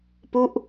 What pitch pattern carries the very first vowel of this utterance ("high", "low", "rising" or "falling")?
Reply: falling